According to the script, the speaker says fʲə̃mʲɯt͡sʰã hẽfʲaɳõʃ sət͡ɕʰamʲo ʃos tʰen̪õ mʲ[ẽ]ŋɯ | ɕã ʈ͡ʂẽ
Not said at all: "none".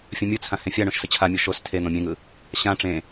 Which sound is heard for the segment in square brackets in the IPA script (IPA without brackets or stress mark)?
ẽ